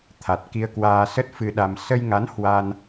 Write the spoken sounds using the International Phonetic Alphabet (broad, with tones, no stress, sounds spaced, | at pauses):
t̪ʰ a˨˩ t̚ k i˧ ə̯ k w aː˧ s ə˦˥ t̚ f ɨ˧ ɗ a˧ m s ə˧ j ŋ a˨˦ n h w a˧ n